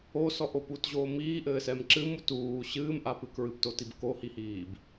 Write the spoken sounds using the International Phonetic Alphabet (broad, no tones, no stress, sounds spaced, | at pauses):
o s ɔ ʔ o p u t ʑ oː m iː ʔ ɘː s ɛ m ǁ ɨ m u t uː ɕ ɨː m ʔ a p ɨ k ɹ ɨ p t o t i b k o h i h iː b